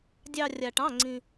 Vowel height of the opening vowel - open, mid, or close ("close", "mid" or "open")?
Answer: open